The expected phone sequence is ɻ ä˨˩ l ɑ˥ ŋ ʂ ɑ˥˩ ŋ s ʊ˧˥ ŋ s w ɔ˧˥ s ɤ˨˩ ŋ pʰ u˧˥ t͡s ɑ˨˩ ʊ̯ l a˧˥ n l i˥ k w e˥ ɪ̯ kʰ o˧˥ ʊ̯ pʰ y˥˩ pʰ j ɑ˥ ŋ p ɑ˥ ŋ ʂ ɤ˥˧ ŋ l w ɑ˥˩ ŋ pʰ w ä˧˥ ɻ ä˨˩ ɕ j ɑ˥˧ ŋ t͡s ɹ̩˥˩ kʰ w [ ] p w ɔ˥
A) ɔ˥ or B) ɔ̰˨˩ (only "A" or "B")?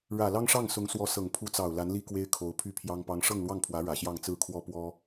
A